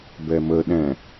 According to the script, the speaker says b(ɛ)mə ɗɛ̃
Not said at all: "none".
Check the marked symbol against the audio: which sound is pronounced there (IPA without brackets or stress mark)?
ɛ